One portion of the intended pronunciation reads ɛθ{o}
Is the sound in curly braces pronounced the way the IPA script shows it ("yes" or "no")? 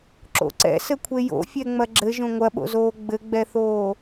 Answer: no